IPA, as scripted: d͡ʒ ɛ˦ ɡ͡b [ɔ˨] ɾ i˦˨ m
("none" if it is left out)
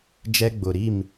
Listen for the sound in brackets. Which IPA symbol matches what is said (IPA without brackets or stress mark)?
ʊ˨